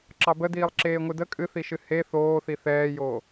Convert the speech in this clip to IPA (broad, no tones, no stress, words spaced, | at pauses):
ǁɑbədiːlˠ ǁeːŋʷɨdə kʼɨθiʃɨ he θoːθi θɛːjoː